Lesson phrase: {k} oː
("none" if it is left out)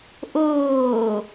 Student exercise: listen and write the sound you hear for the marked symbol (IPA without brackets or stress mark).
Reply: ʔ